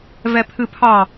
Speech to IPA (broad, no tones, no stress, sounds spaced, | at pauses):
v ɛ pʰ ɨ pʰ ɑ